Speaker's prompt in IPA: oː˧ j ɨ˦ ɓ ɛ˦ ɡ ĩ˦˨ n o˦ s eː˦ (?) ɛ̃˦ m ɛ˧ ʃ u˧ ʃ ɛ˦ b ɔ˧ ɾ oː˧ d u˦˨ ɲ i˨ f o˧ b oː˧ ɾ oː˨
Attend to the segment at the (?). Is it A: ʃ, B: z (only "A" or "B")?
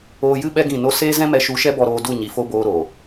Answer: B